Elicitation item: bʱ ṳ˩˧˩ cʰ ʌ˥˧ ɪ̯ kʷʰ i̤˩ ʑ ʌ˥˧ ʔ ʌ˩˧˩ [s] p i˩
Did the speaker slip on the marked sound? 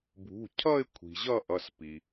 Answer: no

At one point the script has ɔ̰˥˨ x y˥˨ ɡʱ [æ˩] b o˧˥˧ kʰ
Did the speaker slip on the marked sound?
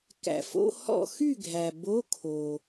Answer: no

